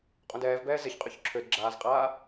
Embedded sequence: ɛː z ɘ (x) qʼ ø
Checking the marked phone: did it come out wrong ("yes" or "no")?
yes